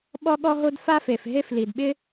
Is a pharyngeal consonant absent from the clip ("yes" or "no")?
yes